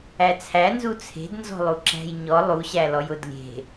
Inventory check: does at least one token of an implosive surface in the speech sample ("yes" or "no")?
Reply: no